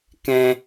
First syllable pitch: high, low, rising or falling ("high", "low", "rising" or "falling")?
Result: high